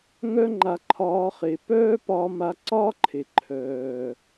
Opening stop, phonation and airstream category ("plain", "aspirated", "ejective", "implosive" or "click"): click